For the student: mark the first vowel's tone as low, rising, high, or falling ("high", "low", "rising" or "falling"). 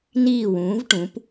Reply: falling